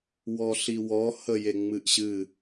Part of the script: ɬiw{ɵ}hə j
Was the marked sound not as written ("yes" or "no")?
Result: yes